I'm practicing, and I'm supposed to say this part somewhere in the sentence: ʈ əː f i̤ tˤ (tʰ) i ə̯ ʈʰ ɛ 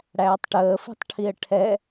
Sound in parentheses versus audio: incorrect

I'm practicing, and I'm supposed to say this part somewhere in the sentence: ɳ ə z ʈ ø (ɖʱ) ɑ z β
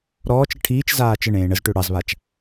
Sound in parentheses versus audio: incorrect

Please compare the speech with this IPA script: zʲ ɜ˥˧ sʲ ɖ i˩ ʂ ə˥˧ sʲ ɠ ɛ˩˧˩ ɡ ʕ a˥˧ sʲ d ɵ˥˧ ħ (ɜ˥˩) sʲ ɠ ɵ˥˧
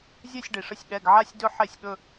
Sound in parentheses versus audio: incorrect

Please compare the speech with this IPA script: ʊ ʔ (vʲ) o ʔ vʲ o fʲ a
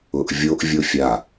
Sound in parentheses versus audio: correct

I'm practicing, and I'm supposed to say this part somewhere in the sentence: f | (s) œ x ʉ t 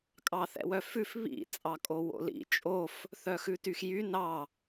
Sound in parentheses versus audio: incorrect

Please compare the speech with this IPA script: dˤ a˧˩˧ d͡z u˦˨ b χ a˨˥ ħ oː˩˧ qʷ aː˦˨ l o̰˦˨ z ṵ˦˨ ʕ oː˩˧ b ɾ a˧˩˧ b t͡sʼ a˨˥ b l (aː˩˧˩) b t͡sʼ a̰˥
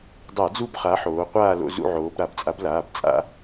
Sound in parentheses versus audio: correct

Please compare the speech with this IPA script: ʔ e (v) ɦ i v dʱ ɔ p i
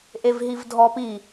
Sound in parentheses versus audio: correct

